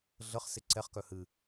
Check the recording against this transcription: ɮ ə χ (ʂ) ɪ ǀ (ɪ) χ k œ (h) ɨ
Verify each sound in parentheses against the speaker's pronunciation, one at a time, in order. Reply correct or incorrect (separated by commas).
incorrect, incorrect, correct